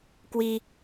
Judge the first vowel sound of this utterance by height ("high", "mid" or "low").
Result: high